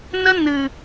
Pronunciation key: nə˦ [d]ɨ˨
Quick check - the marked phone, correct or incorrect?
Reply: incorrect